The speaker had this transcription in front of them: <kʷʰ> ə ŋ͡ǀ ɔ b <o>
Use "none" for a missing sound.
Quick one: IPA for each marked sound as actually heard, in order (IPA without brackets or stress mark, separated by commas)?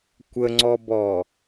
kʷ, ɔ